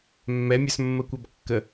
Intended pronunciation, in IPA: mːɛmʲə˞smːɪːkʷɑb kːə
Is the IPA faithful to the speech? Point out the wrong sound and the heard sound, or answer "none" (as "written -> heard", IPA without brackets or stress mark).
ɪː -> əː